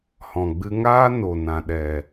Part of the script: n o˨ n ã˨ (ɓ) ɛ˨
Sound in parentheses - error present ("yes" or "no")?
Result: yes